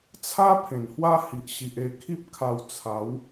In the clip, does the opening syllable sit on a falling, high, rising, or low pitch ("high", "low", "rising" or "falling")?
high